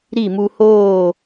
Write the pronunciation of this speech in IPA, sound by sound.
ɾi˦˨mu˧hoː˦˨

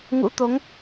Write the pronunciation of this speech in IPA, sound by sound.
ŋṵ˧˥ t̪o˨˦ŋ

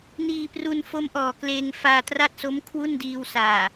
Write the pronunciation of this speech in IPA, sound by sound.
niː˧pru˧n fo˦˥mʔɔː˨˩ kleː˧ŋfaː˧tra˥˩t̚so˦˥m kʰwu˥˩ndiː˧wsaː˨˩

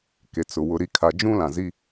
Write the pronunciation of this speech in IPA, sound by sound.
ke˨t͡sʊ˨ wʊ˨ɾi˨kʰa˨ d͡ʒũ˦lã˨ zi˦

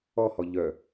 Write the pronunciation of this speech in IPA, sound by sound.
ɔhɔ ʎœ

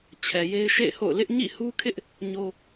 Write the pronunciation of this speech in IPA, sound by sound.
t͡ɕʰɛ˨ je˦ɪ̯ʃḛ˦˨ɪ̯ho̰˦˨ʊ̯ lɪ˦ʔ ɲḭ˦˨hu˦kʰɪ˦ʔ | ɲo˦

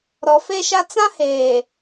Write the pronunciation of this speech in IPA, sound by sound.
ɾɔ˨fe˦ʃa˦ t͡sã˦heː˨

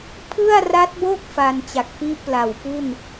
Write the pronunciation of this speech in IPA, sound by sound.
pʰɯ˥˩a̯ra˦˥t̚bo˥˩k̚ fa˧nt͡ɕa˨˩k̚pi˥˩ʔ pla˨˩wpu˥˩n

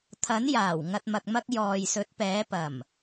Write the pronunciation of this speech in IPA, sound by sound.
t̪ʰɐ˨˥njaː˨˩w ŋɐ˨t̚mɐ˨k̚mɐ˧k̚ jɔː˨jsɵ˨˥t̚pɛː˨˥ pɐ˨˩m

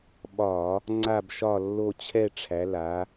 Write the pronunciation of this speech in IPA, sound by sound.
ɓɒ˧˩˧ | ŋ͡ǀa˦˨bʃɒ˦˨lːo˦˨ t͡ɕʰɛ˦˨ʈ͡ʂʰæ˩˧ la˩˧

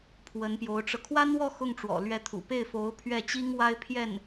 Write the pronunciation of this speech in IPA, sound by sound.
pʰwə˧˥n pjo˧˥ʊ̯ʈ͡ʂɤ˧ kʰwa˥nwɔ˥˧ xʊ˥˩ŋʈ͡ʂwɔ̰˨˩ lɥɛ˧˥t̪ʰṵ˨˩ pe˥˩ɪ̯fo˧˥ʊ̯ pʰɥɛ˥˩t͡ɕi˥ŋ wa˥ɪ̯pʰjɛ˥˩n

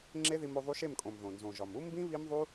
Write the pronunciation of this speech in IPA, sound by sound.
ŋ͡ǁe˦ði˧m o˧ ðˤu˧ʃe˦˨mkʼõ˨m ðõ˨nzõ˨ʒɒ˨m u˦mbĩ˦ βi˦mðˤu˦

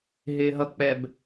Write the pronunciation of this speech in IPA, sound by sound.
ɦɪːɦʌk͡pɛb

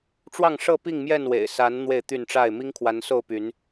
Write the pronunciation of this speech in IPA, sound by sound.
ʈ͡ʂwɑ˥˨ŋʂɤ˥˨pi˥˨ŋmjɛ˥˨n wḛ˨˩ɪ̯sa˨˦n n̪we˥˨ɪ̯t̪y˥˨nʈ͡ʂa˥˨ɪ̯ mi˦ŋkʰwa˨˦nso˥˨ʊ̯ py˨˦n

